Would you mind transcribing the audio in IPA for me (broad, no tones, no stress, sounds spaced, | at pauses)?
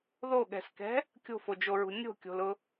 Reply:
ð o ɠ ɛ̤ s k ɛ̤ | kʲ o̤ f o d͡ʒ o ɹ ṳ nʲ o̤ kʲ o̤ l ʊ